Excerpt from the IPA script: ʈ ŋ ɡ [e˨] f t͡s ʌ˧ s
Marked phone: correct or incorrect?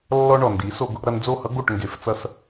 correct